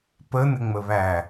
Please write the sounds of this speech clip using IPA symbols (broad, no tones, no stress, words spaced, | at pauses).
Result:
pə nɪŋ͡məβæ